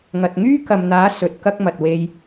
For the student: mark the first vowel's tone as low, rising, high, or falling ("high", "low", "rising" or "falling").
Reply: low